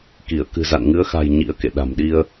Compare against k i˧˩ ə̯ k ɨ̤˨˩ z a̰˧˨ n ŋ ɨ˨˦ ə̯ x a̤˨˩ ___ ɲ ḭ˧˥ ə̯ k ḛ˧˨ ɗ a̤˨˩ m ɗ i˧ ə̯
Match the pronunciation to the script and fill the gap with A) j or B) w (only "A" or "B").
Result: A